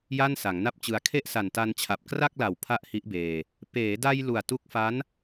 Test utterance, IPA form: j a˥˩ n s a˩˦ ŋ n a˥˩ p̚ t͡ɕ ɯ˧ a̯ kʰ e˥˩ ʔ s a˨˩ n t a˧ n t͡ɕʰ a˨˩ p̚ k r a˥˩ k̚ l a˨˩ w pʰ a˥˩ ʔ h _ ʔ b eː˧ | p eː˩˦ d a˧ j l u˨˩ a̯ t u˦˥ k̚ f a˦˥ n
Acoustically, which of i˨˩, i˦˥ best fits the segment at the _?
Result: i˦˥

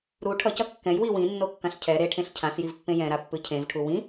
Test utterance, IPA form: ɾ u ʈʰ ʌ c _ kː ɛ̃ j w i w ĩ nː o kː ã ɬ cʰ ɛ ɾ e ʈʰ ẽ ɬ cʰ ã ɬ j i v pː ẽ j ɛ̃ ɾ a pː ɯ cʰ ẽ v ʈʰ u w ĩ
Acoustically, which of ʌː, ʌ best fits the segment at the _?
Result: ʌ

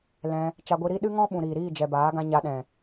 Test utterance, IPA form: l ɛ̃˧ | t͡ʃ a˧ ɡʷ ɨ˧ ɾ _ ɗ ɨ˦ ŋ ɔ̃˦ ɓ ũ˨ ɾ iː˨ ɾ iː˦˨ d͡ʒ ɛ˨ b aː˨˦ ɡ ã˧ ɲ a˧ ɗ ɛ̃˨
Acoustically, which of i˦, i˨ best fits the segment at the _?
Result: i˦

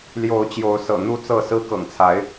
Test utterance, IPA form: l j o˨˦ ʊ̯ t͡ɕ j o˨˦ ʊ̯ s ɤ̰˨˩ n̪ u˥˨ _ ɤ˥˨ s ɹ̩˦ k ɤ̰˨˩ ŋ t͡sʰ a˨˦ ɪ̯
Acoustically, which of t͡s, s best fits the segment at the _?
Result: t͡s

